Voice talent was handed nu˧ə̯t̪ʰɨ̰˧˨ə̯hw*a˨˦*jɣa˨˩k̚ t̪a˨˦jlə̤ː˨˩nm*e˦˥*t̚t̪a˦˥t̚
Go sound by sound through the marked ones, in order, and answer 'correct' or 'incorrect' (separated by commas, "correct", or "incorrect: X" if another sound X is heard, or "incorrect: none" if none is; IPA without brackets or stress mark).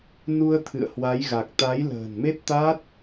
correct, correct